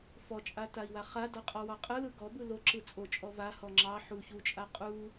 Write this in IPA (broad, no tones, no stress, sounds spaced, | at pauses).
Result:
f ɔ t͡ʃʼ a t a i̯ w a χ a d a qʼ ɔ w ɑ qʼ ɯ l ɯ ɡ ɔ b ɯ l o ǁ ɯ t͡sʼ o t͡ʃʼ ɔ v a h ɔ ŋ͡ǁ ɑ ħ u ç u t͡ʃʼ a qʼ u